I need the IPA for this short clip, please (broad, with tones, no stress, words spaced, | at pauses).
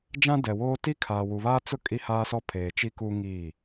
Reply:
d͡ʒã˦ dɛ˨woː˦ ti˦kʰaː˨wu˨ βaː˦t͡sʊ˦ kʼi˦haː˦sɔ˦ pʰeː˨t͡ʃi˦ku˦ ŋiː˦˨